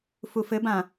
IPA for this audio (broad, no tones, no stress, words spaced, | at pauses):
fufɘbã